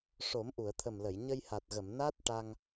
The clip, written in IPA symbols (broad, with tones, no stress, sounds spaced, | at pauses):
ʂ o˨˩˦ m ʔ u˨˩˨ ə̯ t̪ʰ ə˨˩ m l ə˨˩˨ j ɲ ə˧ j h a˨˩ t̚ ɣ ə˨˩˨ m n a˦˥ t̚ ʈ a˧ ŋ